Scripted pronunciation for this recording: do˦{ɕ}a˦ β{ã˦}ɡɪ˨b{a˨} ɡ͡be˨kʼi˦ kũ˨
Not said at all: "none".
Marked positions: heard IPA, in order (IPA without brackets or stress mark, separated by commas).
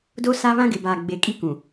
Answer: s, ã˦, aː˨